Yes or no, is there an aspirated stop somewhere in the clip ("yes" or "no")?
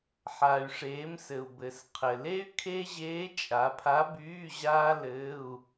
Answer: yes